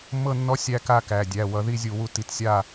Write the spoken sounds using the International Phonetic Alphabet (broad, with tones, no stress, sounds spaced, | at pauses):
mː ɤ˥˧ nː ɔ˦˥ sʲ æ˦˥ k a˥˧ k æ˩˧˩ dʲ æ˩˧˩ w ʌ˧˩˧ ð i˥˧ zʲ u˧˩˧ w u˧ t i˧ t sʲ a˥˧